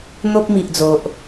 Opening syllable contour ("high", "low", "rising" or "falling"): high